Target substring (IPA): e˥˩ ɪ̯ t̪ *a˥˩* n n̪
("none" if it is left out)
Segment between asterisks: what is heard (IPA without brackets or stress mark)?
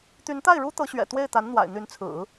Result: a˧˥